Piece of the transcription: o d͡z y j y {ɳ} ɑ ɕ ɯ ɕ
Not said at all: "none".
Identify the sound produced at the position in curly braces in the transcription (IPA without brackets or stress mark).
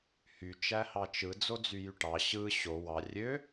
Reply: ʈ